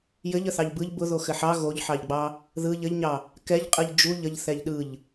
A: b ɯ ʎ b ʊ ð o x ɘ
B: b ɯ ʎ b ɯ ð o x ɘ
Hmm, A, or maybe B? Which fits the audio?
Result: A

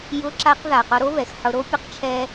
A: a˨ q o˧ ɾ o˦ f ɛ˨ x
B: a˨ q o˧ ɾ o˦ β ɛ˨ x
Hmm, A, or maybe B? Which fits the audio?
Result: B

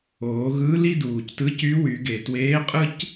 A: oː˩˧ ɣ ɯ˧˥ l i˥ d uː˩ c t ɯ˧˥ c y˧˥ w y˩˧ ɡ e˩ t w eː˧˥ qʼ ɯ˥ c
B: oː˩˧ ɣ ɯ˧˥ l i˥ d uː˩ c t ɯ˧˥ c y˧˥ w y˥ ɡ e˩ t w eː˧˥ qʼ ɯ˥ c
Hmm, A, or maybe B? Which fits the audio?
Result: A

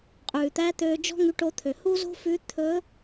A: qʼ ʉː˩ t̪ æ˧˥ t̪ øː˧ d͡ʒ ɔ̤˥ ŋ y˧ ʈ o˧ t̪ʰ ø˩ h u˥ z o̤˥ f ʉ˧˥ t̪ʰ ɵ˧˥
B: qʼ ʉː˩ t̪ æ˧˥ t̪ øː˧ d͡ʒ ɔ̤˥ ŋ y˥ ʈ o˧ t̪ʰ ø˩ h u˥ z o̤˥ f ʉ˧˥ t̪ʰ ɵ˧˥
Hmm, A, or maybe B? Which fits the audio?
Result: A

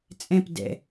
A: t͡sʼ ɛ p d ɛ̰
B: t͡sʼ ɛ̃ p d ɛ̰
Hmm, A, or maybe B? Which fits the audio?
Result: B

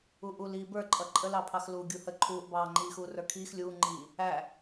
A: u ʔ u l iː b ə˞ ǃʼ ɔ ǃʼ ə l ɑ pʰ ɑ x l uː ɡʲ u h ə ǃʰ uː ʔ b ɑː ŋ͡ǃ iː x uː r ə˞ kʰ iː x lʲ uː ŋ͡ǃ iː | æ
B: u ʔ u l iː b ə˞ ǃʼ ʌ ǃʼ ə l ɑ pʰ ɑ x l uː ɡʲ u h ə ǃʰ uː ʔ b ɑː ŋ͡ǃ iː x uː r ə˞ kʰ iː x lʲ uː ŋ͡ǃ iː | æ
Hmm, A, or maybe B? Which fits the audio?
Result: B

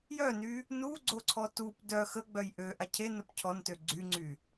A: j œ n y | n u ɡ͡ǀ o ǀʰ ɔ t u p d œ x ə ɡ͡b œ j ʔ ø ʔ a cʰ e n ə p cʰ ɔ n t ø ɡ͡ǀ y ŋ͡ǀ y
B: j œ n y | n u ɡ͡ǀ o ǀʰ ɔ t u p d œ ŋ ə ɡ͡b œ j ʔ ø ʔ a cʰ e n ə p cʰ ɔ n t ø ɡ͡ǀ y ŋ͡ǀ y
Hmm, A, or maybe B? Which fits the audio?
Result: A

